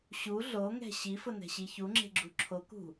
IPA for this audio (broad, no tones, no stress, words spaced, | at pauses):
ɕu ɮoŋɛ̤ ɕifʊnɛ̤ɕi çuŋ͡ǁe̤ɡ͡ǁu ǁʰokṳ